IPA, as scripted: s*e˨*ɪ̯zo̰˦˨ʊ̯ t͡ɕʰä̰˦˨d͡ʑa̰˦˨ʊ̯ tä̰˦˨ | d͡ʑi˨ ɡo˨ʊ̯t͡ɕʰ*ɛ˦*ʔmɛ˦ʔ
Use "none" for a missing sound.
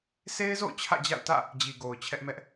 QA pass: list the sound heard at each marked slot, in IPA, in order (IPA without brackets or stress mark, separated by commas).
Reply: e˦, ɛ˦